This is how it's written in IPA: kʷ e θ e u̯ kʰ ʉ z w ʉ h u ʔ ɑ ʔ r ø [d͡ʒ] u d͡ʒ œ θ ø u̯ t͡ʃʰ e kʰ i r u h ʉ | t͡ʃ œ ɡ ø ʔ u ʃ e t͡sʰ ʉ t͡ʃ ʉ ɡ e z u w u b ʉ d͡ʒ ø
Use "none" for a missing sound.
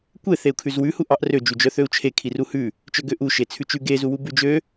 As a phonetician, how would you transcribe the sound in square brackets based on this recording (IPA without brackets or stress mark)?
d͡ʒ